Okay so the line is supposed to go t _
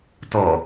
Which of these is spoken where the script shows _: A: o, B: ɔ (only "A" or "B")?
B